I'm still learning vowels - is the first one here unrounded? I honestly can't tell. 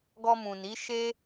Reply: no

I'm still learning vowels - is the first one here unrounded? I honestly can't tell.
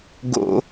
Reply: no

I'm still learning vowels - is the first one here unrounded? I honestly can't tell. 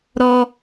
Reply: no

